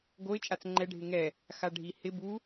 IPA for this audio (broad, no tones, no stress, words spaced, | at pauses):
ɡoɪ̯ t͡ʃʼat͡sŋ͡ǃɛ ɖʱɪŋɛ | xaɖʱihɪ bu